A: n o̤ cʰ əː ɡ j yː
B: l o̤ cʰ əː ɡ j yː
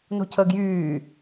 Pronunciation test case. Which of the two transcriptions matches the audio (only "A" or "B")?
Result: A